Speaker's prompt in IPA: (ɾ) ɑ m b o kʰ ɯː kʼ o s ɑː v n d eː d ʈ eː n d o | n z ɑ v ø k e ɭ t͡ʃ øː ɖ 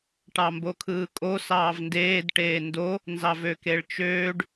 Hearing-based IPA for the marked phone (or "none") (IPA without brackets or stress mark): ʈ